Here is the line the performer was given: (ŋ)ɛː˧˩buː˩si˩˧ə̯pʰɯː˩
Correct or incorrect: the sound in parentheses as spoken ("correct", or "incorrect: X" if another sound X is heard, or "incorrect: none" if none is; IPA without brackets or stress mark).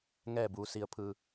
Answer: correct